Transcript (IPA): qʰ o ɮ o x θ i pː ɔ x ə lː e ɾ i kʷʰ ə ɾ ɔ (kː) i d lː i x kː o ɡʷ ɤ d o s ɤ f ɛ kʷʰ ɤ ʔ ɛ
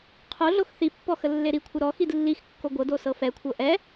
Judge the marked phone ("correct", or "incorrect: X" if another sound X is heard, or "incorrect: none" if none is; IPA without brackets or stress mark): incorrect: x